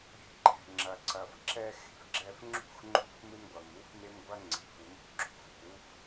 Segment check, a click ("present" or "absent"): present